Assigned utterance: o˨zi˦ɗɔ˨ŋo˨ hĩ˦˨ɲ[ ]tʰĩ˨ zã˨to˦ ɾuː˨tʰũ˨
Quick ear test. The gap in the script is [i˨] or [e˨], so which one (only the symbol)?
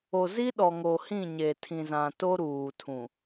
e˨